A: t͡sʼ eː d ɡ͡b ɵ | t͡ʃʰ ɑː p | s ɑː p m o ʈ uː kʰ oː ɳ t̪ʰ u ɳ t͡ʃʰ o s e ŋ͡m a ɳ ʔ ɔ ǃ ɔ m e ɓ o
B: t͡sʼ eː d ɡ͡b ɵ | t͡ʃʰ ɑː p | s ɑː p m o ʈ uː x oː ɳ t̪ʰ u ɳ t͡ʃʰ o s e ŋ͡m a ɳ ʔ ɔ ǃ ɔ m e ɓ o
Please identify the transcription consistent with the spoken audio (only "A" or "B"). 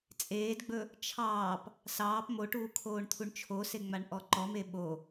A